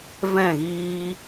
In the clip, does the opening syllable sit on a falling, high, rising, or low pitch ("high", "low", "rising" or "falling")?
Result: falling